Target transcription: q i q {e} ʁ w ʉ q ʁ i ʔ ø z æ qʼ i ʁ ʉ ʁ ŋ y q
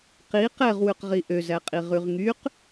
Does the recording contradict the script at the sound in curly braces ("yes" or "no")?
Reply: yes